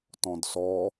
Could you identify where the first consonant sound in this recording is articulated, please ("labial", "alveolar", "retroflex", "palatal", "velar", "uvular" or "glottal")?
alveolar